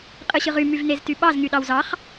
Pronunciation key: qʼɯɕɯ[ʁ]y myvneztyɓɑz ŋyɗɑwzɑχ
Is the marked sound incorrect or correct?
correct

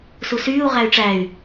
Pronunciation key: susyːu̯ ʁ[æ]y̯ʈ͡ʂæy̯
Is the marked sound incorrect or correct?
correct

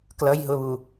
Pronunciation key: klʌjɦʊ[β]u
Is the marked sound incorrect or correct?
correct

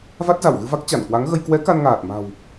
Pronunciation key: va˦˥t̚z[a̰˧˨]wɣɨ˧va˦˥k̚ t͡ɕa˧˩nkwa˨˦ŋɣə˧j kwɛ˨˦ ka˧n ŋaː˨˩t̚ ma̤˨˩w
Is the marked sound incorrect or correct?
incorrect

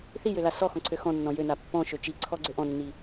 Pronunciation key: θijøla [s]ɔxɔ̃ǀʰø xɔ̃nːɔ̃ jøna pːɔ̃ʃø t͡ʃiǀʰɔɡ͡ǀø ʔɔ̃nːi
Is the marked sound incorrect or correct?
correct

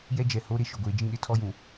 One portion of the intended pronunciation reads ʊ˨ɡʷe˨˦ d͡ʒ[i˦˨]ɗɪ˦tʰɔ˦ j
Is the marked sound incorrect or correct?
incorrect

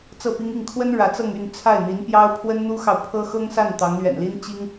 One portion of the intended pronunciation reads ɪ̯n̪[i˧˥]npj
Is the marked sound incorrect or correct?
correct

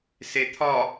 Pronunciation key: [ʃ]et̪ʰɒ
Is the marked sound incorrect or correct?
incorrect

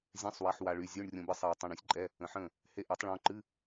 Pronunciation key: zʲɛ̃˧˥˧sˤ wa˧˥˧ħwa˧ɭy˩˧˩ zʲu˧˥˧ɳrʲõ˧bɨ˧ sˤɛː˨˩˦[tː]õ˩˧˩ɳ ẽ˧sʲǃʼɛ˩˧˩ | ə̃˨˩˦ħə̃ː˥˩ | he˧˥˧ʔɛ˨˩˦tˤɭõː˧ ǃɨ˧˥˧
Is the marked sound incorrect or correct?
incorrect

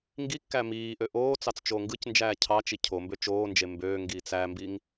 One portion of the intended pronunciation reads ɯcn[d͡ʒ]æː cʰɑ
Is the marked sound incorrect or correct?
correct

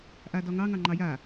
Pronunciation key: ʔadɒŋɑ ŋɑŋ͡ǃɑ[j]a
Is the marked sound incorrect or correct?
correct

